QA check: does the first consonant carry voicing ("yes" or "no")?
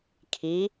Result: no